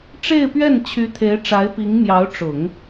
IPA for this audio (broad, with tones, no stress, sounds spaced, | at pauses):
ʈ͡ʂ e˥˧ ɪ̯ p ɥ ɛ˥˩ n t͡ɕʰ y˧˥ t̪ʰ e˧˥ ɪ̯ ʈ͡ʂ a˧˥ ɪ̯ p i˧˥ ŋ m j ɑ˧˥ ʊ̯ ʈ͡ʂ ʊ˨˩˦ ŋ